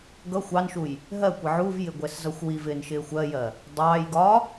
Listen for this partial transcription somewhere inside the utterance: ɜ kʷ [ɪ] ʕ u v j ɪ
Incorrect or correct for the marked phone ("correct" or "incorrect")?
correct